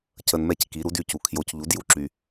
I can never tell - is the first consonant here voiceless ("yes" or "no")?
yes